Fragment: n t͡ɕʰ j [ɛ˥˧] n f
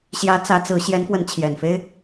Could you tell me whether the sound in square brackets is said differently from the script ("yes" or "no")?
yes